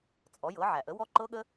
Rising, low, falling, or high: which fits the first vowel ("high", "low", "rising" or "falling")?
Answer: rising